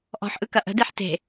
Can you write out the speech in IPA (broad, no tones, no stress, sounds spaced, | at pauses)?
ʔ ɔ̤ ħ ʔ ɯ k ɐ ʔ ə̤ d e ħ t e̤